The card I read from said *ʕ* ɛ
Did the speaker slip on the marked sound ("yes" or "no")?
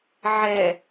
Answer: no